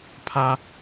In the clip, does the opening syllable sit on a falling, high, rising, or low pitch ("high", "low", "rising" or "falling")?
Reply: high